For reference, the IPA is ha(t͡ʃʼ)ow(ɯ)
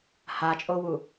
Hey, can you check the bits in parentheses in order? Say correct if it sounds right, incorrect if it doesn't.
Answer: correct, incorrect: u

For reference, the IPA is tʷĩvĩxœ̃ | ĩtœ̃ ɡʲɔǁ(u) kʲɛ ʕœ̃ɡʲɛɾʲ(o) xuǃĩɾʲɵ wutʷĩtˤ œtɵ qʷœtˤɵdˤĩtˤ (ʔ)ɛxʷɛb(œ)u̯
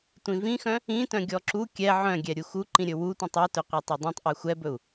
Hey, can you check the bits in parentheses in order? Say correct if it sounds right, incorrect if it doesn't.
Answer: correct, incorrect: u, correct, incorrect: ɵ

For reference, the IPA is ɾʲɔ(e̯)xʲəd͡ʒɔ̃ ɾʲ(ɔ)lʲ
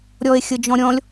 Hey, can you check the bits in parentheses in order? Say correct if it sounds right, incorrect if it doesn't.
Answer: correct, incorrect: ɔ̃

